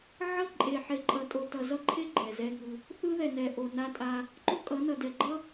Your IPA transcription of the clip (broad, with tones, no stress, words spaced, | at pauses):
ʕʌ˦ ǃʼe˨ħe˨ǃʼʌ˨ tʼo˨tʌ˨zʌ˦ǃʰe˦ ɡ͡ǃɛ˨zɛ˦ŋɯ˦ | θɯ˦ðɛ˨nɛ˨ ʔo˨ na˦tʼa˦ | ǃo˦kʼʌ˨˦ nʌ˨dɛ˨ɡ͡ǃʌ˦